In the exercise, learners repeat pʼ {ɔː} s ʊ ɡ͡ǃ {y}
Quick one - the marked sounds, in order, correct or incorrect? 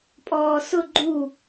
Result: correct, incorrect: u

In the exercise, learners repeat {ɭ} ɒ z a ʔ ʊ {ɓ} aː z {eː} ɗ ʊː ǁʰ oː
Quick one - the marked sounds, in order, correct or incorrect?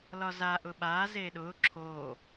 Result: incorrect: l, correct, correct

